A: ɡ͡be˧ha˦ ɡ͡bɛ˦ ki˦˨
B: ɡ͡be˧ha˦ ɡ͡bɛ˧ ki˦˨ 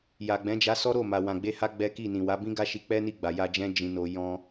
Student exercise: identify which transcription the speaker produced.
A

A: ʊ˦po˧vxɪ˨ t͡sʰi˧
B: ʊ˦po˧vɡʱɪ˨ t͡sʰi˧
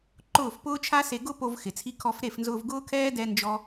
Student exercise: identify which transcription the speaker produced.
A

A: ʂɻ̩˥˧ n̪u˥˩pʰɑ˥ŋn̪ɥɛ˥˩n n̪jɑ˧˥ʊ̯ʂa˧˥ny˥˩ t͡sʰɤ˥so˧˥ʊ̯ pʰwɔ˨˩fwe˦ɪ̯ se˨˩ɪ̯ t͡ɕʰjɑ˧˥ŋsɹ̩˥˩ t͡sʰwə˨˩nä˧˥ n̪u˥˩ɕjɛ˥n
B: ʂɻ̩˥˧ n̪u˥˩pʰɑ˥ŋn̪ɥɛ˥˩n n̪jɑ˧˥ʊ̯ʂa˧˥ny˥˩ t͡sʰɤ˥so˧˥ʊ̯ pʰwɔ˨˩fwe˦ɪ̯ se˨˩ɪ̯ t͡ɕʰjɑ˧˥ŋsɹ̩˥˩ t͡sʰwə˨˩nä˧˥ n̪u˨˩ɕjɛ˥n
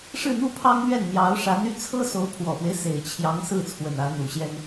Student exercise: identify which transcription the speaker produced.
B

